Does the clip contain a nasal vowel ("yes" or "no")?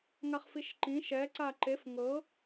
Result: yes